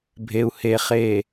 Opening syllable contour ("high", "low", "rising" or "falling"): low